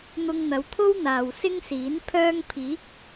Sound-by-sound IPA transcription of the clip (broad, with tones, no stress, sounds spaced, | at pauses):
n̪ ʊ˧ ŋ n̪ ɐ˨˧ w t̪ʰ o˥ w n̪ aː˨ w s ɪ˥ ŋ s iː˨˥ n pʰ œː˥ ŋ pʰ iː˨˥ k̚